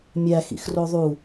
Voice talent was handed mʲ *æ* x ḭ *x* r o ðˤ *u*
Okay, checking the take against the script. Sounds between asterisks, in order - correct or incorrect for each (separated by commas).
correct, correct, correct